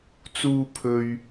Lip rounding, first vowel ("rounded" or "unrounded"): rounded